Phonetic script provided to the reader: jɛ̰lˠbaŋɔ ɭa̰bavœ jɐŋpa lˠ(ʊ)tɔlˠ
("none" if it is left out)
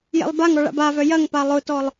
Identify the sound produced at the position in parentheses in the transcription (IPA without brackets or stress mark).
ʊ